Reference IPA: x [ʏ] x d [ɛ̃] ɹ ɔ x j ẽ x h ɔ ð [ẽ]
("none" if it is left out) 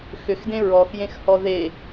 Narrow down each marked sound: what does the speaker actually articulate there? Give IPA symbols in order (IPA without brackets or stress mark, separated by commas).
ʏ, ẽ, e